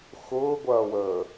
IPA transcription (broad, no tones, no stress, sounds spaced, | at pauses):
x ʊː ɡʷ ɐː w əː